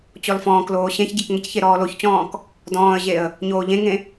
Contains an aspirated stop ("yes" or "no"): no